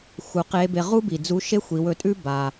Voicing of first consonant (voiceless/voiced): voiceless